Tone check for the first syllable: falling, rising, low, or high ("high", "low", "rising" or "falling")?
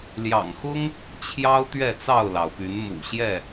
low